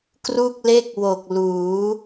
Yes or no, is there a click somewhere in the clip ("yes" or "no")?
no